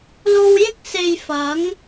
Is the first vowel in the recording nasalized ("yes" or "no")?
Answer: no